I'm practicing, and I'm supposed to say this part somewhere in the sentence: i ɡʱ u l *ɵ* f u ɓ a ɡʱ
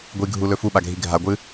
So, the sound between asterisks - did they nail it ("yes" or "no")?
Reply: yes